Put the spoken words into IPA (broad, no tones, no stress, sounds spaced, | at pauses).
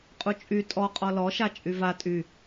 qʼ u t͡ʃʼ y tʼ ɔ qʼ ɔ l ɔ ʃ a t͡ʃʼ y v a tʼ y